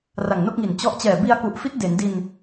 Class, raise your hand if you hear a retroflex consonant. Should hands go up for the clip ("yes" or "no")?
no